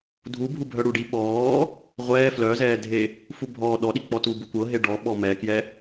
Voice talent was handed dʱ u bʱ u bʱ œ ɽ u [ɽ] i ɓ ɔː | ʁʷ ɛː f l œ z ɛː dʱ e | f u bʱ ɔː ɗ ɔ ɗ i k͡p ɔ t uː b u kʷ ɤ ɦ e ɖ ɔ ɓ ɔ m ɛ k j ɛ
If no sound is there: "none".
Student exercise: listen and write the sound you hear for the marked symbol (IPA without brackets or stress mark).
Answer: ɖ